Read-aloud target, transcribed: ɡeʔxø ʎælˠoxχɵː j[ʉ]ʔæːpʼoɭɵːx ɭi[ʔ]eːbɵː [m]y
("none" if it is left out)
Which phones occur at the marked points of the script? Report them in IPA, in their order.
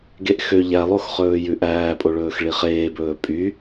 ʉ, χ, pʼ

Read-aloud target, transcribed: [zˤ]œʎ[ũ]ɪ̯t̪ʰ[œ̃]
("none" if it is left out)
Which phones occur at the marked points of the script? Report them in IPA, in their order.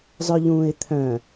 zˤ, ũː, œ̃

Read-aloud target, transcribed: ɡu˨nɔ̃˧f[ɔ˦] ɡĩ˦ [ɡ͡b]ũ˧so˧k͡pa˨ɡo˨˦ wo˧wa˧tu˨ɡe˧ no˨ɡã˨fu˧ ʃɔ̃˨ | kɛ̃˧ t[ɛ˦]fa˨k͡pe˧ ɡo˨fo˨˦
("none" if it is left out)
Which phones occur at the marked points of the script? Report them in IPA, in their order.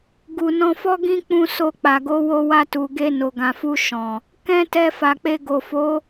ɔ˦, k͡p, ɛ˧

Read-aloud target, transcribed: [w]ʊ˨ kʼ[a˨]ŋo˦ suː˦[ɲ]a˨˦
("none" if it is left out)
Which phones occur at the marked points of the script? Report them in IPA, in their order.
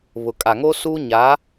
β, a˨, ɲ

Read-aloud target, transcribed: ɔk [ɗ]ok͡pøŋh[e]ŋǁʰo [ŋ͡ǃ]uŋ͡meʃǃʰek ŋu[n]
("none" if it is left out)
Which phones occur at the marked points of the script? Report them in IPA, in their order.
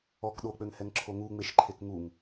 ɗ, ɛ, ŋ, ŋ

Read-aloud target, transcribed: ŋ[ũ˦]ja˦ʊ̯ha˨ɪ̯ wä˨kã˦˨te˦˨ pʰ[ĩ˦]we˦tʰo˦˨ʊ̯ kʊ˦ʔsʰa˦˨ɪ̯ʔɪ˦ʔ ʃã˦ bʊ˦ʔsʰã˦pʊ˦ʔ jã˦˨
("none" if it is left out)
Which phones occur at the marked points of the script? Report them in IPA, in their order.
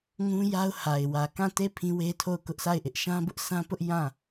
ũ˦, ĩ˦

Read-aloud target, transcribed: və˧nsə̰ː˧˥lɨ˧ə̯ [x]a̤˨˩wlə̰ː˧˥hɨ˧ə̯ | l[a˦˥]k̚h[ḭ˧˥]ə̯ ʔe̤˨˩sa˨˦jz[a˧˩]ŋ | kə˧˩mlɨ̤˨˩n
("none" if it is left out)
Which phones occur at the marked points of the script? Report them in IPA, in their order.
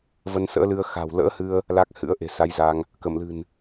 x, a˦˥, ɨ̰˧˥, a˧

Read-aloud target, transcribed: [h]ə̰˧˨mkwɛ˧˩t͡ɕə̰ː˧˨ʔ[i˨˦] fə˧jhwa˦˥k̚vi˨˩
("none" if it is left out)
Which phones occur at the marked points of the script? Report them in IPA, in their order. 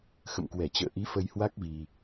x, i˨˦

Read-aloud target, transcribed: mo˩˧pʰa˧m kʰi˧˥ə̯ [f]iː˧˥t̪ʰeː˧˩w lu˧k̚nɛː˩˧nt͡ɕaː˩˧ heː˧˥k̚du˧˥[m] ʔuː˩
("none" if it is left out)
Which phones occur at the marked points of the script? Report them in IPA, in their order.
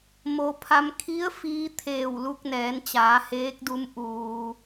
f, m

